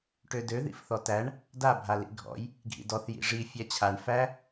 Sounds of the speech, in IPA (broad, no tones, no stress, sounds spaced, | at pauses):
ʈ ø d ø ð ḭ f θ ɔ t æ ɳ | d a bʱ a l ḭ ɡʱ ɔ̰ j | ɡʱ ḭ d ɔ θ j ḭ ʐ i fʲ æ t͡ɕʰ a ɳ f æ